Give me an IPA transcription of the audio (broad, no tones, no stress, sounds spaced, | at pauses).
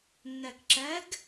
nː ɜ k ǁ ɜ ɡ